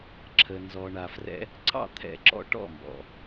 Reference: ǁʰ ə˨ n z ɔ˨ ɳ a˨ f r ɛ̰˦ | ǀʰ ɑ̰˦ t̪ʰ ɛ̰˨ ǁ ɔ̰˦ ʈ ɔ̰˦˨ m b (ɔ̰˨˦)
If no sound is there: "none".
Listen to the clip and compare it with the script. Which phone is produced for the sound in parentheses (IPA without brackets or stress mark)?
ɔ̰˨